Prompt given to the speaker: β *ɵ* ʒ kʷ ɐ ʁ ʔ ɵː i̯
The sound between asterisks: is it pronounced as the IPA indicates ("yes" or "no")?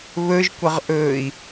yes